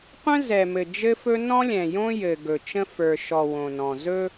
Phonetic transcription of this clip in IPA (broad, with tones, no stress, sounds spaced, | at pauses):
qʷ ə̃˦ z ɛ˨ m ɘ˨ d͡ʒ ɘ˦ f ɵ˦ n ɔ̃˦ lʲ ɛ̃˨ j õ˦ j ɘ˨ ɡ ɵ˨ t͡ʃ ə̃˦ f ə˞˨ ʃ ɔ˨ w õ˨ n ɔ̃˨ z ɵ˦